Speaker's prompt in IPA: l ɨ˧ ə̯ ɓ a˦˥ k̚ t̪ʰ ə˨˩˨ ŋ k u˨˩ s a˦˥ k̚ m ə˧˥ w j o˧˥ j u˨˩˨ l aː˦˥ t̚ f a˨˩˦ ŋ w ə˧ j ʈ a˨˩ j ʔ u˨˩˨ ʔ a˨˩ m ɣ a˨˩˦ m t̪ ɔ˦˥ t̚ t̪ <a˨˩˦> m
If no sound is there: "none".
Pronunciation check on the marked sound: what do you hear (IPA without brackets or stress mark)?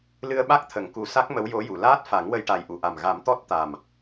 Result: a˨˩